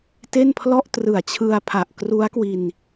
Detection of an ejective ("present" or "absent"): absent